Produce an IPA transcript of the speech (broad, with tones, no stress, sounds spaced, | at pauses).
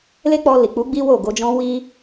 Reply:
l e˦ k͡p ɔ˧ l i˨ k͡p u˨˦ ɡ͡b i˦ w o˦˨ ɡ o˨˦ d͡ʒ ɔ̃˦ w i˧